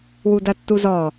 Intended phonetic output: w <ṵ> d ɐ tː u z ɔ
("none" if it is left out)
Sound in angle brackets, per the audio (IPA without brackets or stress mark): u